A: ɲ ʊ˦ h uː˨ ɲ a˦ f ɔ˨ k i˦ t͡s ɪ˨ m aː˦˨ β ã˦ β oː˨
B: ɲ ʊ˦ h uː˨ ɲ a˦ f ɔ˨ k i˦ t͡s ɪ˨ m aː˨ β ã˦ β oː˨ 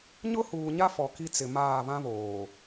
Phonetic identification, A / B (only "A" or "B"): A